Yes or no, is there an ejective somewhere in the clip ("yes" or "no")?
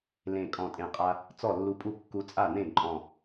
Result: yes